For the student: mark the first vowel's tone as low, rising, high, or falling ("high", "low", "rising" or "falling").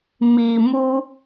low